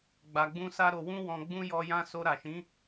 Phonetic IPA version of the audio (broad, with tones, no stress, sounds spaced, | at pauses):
ɡ͡b a˧ ɡ͡b ũ˦ s a˦ ɾ o˧ w ũ˦ w ɔ̃˧ ɡ͡b ũ˦ j ɔ˧ j ã˦ s o˧ ɾ a˨ ʃ ĩ˨˦